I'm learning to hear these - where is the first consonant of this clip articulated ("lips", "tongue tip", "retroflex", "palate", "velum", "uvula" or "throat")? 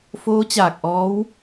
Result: lips